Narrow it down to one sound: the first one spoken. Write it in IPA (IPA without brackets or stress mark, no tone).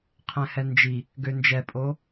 qʰ